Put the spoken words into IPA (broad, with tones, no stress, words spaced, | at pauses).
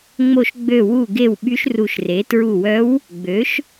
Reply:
ŋ͡mo˧˩ʃɡ͡bø˧˩wu˧˩ɡe˧˩w ɓy˧˥ʃru˧˩ʃre˩˥ tɹu˧˩wœ˧˥w | ɡ͡bø˩˥ʃ